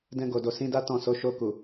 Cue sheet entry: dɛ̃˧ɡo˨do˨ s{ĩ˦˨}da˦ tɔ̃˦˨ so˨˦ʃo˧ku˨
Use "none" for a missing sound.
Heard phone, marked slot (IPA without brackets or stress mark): ĩ˧